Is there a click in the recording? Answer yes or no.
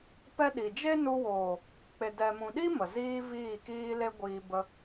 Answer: no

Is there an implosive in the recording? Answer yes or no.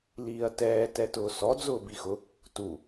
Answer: no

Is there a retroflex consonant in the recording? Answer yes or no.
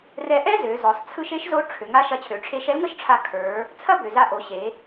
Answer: yes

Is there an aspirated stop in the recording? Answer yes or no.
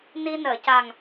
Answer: no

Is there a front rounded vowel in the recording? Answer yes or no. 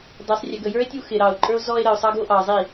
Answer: no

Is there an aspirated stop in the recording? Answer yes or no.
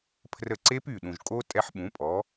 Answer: yes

